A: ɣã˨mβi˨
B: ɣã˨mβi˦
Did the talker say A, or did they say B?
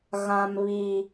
A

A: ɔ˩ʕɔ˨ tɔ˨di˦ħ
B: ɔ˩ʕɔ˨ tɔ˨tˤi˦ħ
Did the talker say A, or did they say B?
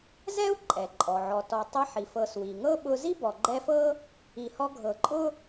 B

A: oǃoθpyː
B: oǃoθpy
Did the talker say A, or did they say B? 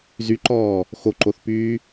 A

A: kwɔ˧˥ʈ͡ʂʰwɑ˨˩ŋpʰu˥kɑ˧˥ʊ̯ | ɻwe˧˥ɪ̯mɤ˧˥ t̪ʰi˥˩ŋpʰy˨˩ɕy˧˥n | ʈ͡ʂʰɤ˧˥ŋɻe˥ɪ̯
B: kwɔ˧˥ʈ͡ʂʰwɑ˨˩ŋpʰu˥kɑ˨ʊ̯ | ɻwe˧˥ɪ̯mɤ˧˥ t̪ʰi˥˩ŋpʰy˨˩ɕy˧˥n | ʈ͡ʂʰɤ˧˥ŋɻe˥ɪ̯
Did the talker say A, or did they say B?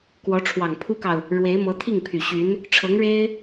B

